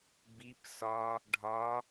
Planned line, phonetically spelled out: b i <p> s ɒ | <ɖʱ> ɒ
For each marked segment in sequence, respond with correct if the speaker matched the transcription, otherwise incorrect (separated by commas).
correct, correct